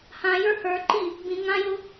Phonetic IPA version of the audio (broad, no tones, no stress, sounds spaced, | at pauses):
h ã j ə˞ h ə˞ ǃ i | b ĩ ŋ ã j ʊ